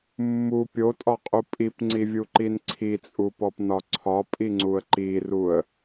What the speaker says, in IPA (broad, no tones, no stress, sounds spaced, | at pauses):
mː u pʲ o tʼ ɒ qʼ u pʼ i p ŋ͡ǀ i vʲ u ǃ i n ǀʰ i t͡sʼ u p ɔ p n ɒ ǀʰ ɒ pʼ i ŋ͡ǀ u ə̯ ǃ i r u ə̯